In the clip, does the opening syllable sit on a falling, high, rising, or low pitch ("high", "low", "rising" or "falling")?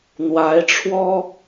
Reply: rising